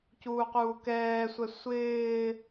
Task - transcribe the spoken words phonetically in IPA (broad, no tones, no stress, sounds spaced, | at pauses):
c uː q uː k ɛː sʷ ɛ sʷ ɪː